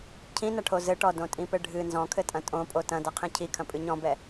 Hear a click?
no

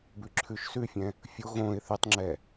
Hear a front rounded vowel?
yes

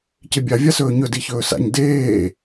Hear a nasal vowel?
no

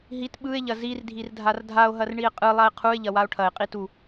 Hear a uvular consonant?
yes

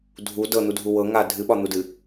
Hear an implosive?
yes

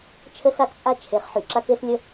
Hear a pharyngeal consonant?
yes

